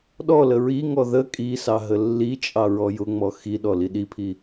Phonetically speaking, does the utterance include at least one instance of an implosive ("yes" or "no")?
yes